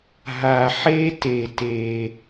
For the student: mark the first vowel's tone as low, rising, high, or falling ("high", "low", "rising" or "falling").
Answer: low